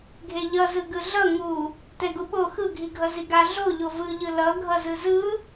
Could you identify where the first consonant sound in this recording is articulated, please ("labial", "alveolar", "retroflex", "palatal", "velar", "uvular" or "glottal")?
velar